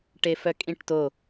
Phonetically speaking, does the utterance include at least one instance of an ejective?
yes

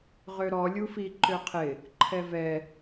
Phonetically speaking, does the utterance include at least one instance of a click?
yes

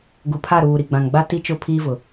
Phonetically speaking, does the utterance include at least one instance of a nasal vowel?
yes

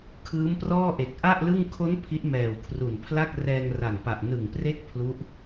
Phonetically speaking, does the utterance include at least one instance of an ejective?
no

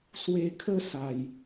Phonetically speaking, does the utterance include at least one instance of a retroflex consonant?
no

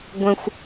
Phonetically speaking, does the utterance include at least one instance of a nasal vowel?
yes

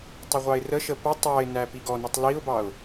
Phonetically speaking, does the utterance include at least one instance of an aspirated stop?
no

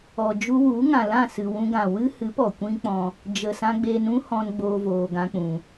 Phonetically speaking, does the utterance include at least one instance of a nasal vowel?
yes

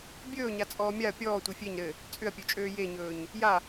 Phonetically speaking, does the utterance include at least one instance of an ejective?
yes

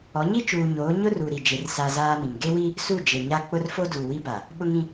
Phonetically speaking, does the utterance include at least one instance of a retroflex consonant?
no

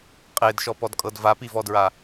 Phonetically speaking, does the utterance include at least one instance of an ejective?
yes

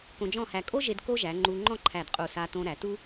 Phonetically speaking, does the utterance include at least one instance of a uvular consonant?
yes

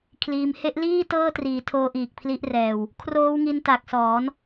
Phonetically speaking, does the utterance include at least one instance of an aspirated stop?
yes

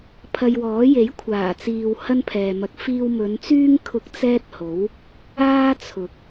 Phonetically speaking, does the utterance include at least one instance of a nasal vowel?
no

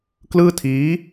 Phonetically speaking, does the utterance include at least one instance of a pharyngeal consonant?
no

